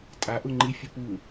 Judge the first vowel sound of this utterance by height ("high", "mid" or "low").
low